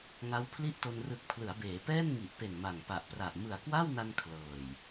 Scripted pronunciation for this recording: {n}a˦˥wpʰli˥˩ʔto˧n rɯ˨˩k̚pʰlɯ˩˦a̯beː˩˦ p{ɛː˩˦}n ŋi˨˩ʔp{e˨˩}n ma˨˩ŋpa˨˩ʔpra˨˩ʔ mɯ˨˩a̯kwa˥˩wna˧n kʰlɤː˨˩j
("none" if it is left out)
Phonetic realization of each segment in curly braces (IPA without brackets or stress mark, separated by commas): ŋ, ɛː˥˩, e˨˩